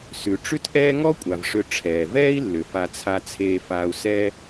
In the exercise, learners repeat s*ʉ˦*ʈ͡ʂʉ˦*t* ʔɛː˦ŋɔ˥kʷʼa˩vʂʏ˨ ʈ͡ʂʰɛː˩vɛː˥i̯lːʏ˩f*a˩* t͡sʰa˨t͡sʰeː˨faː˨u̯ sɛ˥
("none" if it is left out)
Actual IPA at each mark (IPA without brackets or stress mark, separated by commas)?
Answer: ʉ˩, t, a˨